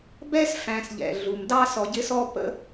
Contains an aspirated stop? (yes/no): no